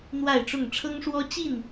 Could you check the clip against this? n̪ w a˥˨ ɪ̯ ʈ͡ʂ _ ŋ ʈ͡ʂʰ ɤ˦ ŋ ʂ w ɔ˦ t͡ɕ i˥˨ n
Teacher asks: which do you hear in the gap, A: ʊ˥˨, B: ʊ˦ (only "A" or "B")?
A